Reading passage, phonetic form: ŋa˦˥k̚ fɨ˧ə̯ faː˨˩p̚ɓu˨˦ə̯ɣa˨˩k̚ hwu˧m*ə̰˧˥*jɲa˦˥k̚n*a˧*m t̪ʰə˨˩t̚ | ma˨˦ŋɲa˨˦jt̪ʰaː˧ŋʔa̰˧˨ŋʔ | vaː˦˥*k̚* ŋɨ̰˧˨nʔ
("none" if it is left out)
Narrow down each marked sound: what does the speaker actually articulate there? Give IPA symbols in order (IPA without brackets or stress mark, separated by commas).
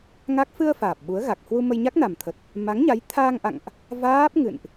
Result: ə˧, a˨˩, p̚